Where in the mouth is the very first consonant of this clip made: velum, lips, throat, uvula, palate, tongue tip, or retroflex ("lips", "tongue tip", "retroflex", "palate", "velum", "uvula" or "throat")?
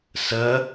tongue tip